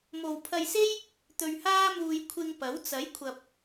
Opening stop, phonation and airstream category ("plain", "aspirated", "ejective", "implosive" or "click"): aspirated